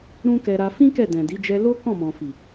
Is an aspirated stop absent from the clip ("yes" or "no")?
yes